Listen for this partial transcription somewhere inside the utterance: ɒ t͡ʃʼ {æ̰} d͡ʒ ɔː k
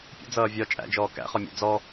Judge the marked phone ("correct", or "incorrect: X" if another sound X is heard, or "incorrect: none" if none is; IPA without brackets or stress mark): correct